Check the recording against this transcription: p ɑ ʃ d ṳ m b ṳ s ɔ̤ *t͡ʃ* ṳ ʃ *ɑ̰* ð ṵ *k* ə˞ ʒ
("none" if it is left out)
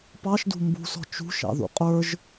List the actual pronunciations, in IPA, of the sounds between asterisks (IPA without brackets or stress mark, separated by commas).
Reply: t͡ʃ, ɑ̰, qʼ